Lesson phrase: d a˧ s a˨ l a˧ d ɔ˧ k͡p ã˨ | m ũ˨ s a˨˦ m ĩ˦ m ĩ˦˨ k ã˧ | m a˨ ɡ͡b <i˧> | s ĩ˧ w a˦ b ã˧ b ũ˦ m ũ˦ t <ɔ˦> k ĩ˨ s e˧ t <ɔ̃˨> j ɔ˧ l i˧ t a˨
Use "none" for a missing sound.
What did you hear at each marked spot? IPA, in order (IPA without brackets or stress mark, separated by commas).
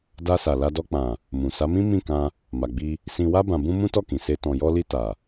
i˧, ɔ˦˨, ɔ̃˨